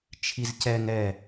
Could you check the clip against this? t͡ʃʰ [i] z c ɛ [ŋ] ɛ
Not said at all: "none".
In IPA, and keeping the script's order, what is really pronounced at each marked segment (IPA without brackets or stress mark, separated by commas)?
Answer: i, ŋ